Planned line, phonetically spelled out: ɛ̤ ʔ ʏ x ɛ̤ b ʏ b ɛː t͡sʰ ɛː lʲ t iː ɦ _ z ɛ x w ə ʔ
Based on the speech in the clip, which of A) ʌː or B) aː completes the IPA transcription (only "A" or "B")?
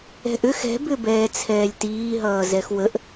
A